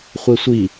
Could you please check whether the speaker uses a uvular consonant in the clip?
yes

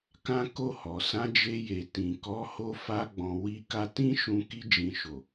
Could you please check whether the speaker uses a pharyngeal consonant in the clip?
no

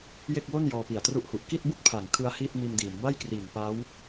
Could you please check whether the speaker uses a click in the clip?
no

